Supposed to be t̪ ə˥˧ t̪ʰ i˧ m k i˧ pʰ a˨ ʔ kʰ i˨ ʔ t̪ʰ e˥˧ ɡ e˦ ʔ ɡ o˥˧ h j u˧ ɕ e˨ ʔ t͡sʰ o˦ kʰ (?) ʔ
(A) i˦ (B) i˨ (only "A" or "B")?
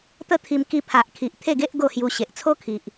B